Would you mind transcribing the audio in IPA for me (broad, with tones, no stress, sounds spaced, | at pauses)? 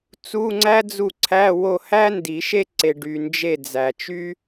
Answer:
t͡s u˧˥˧ ŋ͡ǀ æ˥ d͡z u˦˨ ǀʰ æ˧˥˧ w o˦˨ h æ˥ n d i˨˩˦ ʃ e˥ ǀ e˨ ɖ y˨ n d͡ʒ e˦˨ d͡z æ˨ t͡ʃ y˥